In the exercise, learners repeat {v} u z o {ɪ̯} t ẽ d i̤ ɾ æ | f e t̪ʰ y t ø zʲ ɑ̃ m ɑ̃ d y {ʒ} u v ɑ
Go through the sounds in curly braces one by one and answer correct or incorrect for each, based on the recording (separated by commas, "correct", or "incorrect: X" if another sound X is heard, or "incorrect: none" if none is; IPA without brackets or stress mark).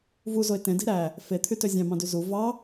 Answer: correct, correct, incorrect: z